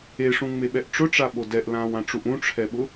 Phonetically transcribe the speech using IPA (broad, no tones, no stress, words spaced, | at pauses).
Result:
eʂũŋ͡meɓɛʔ ʈ͡ʂʊʈ͡ʂaɓo dɛʔlãːwãʈ͡ʂuʔ ũʈ͡ʂʰɛɓʊ